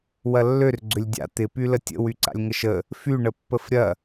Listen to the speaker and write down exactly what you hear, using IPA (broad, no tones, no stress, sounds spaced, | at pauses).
w ɐ lː ø r ɡ͡ǀ ʏ lʲ dʲ a̰ t̪ ɪ p y l ə tʲ ə̰ w y ǀ a̰ lʲ ŋ ə ʃ ə | f y ɳ ə pː ə f ɾʲ ɐ